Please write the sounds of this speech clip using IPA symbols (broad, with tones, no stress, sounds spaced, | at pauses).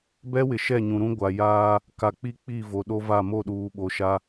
b ɛ˦ w ɪ˨ ʃ ɛ˦˨ ɲ ũ˨ ɾ ũ˦ ɡʷ a˨ j aː˦ | k a˨ k͡p i˦ k͡p i˦˨ v o˨ ɗ o˦ v a˦˨ m o˦˨ ɗ uː˨ ɓ o˨ ʃ a˦